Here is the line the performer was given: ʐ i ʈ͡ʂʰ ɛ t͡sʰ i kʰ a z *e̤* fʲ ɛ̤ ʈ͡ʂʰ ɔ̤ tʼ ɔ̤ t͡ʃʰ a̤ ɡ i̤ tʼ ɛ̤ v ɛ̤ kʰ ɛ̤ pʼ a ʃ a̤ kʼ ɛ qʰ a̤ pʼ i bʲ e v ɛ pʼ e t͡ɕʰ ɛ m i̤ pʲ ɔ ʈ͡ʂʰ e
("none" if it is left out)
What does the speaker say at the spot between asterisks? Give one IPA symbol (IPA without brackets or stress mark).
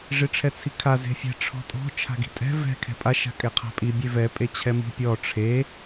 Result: e̤